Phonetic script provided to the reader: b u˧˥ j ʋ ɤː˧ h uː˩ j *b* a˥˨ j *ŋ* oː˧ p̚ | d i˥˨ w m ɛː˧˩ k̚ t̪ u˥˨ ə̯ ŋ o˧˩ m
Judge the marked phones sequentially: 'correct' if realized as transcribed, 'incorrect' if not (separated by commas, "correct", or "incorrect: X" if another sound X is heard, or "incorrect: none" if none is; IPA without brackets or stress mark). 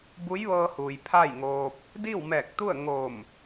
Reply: incorrect: pʰ, correct